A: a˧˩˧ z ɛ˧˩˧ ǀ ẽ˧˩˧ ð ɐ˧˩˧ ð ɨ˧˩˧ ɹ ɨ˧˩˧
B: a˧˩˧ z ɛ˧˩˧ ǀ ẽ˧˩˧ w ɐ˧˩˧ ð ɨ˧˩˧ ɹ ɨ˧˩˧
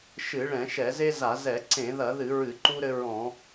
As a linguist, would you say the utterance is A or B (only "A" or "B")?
A